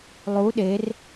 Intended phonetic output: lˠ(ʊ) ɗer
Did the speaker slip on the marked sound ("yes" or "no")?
yes